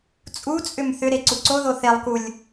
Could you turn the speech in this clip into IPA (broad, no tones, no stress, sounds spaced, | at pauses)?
t͡sʼ u t͡sʼ ʏ m θ ʏ ɾ e ǀ u ǀ o ð o θ e lˠ k u lʲ